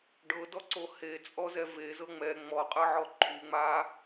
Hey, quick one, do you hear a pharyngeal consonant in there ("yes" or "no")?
yes